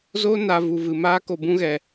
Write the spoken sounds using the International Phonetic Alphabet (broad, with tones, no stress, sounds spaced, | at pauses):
z o˦ n a˧ v u˧ v ɨ˧ m aː˦ k o˧ b ũ˦ ɣ ɛ˧